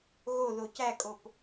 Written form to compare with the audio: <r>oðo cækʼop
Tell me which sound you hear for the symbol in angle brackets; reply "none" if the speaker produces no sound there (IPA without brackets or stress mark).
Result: ɣ